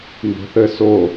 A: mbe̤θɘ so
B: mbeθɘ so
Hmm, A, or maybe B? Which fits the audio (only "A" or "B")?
A